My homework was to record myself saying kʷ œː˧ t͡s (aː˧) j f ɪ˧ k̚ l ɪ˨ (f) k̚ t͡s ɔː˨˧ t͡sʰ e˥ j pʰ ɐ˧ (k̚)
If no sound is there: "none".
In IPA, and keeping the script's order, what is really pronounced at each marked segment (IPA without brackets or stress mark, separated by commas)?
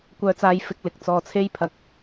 aː˧, none, k̚